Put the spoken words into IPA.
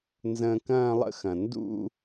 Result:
n z ə̃ː˧ k ɐ̃ː˥˧ lˠ ə̰˥˧ x ɐ̃˩ n d ṵ˥˧

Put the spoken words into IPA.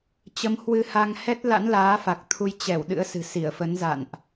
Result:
t͡ɕ ə˨˦ m h w ɨ˧ h a˧ ŋ h ɛ˦˥ t̚ l a̰˧˥ n l aː˨˦ f a˨˩ k̚ t̪ʰ u˧ j t͡ɕ ɛ˧˩ w ɗ ɨ̰˧˥ ə̯ s ɨ̤˨˩ s i˧˩ ə̯ f ə˨˦ n z a̰˧˨ n ʔ

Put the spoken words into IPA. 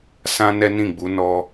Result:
s ã˦ n ɛ˦ n ĩ˦˨ ɡ͡b u˨˦ n ɔ˦

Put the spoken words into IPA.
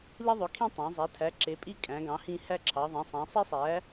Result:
l i˦ ðˤ ø˨˦ kʰ ĩ˦ tˤ ĩ˨˦ zˤ æ˨˦ tʰ æ˨˦ ǁ e˨˦ pʼ i˦ kʼ æ̃˨˦ ɡ ɑ̃˨˦ h ĩ˦ h æ˦ ǁʰ ɑ˨˦ ðˤ ẽ˨˦ sˤ æ̃˨˦ sˤ i˦ sˤ æ˨˦

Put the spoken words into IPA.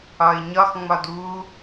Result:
ɒ ɪ̯ ɲ ɒ x ŋ͡m ɒ d u

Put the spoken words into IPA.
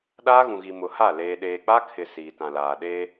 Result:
ɗ aː˦ ɣ ũ˨ ɣ i˨ m ʊ˨ h a˦˨ l eː˨ ɗ eː˨ k͡p a˦ kʰ ɪ˨ s iː˨ t ã˨ l aː˨ ɗ eː˦

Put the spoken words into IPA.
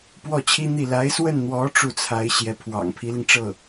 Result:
p w ɔ˥˩ t͡ɕʰ i˥ n̪ i˥˩ l a˧˥ ɪ̯ s w ə˥˩ n n̪ w ɔ˧˥ ʈ͡ʂ u˥˩ t͡sʰ a˧˥ ɪ̯ ɕ j ɛ˧˥ pʰ w ɑ̰˨˩ ŋ pʰ i˧˥ l i˧ ŋ ʈ͡ʂ ɤ˥˩

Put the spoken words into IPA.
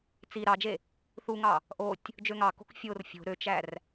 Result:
t͡s i ɾ ɑ d͡ʒ e | θ u ŋ ɑ | ʔ o tʲ | d͡ʒ ø ŋ ɑ k o̤ k fʲ o r fʲ o̤ ɾ ø t͡ʃ æ r

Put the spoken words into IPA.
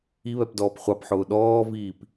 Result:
i β ɛ p d ɔː p χʷ ɑ p ħ ʊː ɗ ɔː v iː p

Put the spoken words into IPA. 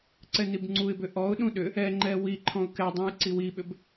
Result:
ǀ ɛ n i b ŋ͡ǀ u ɪ̯ b ʏ ʔ ɔ ʊ̯ ɗ ũ ɗ ʏ | ɛ ŋ͡ǃ ɛ w i ǃʰ ɔ̃ ʊ̯ k ɛ dˤ ũ j ǀ i w i ɓ ʏ b

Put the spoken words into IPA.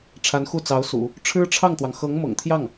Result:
ʈ͡ʂʰ a˧˥ n x u˥˩ t͡s ɑ˧˥ ʊ̯ s ṵ˨˩˦ | ʈ͡ʂʰ ɻ̩˥ ʈ͡ʂʰ ɑ˥˩ ŋ t̪ w ɑ˩ ŋ x ɤ˧˥ ŋ m ɤ̰˨˩ ŋ t̪ʰ j ɑ˥˩ ŋ

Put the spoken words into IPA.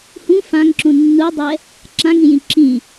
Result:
h ũ f ã ŋ ǁ ũ nː u dˤ ɛ | ǁ ã ŋ ĩ j ĩ ǁ ĩ

